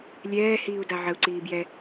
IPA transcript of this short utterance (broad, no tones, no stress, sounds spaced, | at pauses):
lʲ ɛː h iː u̯ d a ʕ ə u̯ ǀ iː b j ɛ